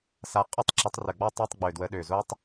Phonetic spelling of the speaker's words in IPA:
s a˨˦ qʼ ə˦˥ tˤ ǁ ə˨˦ tˤ r ə˨˩ ɡ͡b ɔ˦˥ tˤ i˧˥˧ tˤ ɡ͡b ø˨˩ d w ə˨˦ ɗ ø˨˩ z o˦˥ tˤ

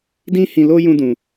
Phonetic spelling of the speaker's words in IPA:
d ĩ˦ h ĩ˧ l o˦ j ũ˦ d ũ˧

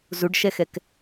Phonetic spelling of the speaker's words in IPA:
z u ɖ ʃ ɛ x ɛ k

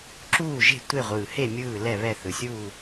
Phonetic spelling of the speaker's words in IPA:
ǁ uː˦˨ ʒ e̤˦˨ tʷ e˦˨ ʁʷ ɯː˨˩ h e˦˨ mʲ ɯː˦˨ l ɛ˦˨ β ɛ˦˨ θ ɯ˨˩ sʲ uː˦˨

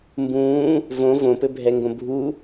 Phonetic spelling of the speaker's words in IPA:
m b ũː | v õ v õ p ɘ bʱ ɛ ŋ ɡ õ bʱ u

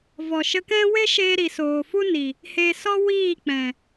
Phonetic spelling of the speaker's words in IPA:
v ɔ˨ ʃ ə˧ k ɛ̃˦ w e˦ ʃ eː˧ ɾ i˨ s oː˨ f u˦ n i˨ | h eː˨ s ɔ˧ w iː˦˨ k͡p ɛ̃˨

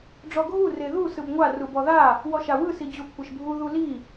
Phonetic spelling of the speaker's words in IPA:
ɖ͡ʐ ɔ ɡʱ u r e ð u s ɯ b ŋʷ a r u b ɔ ð a | w ɔ ʃ a w ɯ s i d͡ʑ u kʷʰ e ʃ bʱ u ð u l i

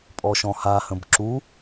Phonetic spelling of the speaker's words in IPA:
pʼ ɔ ʃ ɔ̃ h a h ə̃ b ǁ u

